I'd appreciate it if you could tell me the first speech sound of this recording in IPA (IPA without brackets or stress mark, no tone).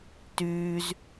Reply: t